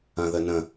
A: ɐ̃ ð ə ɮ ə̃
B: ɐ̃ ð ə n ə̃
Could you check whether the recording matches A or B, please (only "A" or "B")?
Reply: B